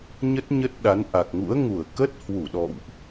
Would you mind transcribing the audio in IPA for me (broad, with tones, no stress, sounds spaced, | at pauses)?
ɲ ə˦˥ t̚ ɲ ə˦˥ t̚ ɗ a˨˦ n ʔ a˨˩ k̚ ŋ ṵ˧˥ ə̯ ŋ u˧˩ ə̯ k ə˦˥ t̚ h w u˧˩ ɗ ɔ̰˧˨ w ʔ